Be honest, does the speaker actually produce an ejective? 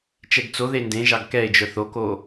no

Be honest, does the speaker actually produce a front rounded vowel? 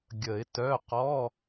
yes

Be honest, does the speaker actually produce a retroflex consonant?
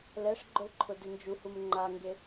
yes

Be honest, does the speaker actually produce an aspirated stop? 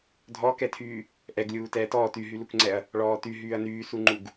yes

